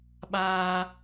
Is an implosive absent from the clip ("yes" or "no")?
no